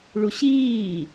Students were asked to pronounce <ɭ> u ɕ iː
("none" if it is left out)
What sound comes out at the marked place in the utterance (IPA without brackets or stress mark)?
ɭ